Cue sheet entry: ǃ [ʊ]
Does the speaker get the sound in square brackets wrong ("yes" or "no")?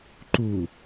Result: yes